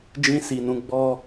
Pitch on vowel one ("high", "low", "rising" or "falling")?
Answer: high